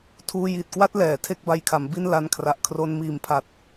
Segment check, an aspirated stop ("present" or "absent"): present